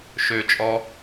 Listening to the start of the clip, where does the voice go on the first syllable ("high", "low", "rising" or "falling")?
low